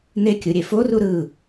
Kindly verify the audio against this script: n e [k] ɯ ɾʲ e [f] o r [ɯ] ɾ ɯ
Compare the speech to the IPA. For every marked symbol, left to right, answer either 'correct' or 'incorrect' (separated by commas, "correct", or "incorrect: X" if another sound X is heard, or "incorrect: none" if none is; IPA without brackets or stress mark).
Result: incorrect: kʲ, correct, incorrect: u